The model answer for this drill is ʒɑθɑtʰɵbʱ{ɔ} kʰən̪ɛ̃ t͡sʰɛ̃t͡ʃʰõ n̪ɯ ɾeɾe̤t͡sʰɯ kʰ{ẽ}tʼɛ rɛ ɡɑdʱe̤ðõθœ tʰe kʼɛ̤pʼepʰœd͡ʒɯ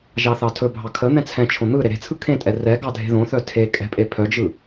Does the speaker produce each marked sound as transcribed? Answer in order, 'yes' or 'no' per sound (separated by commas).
no, yes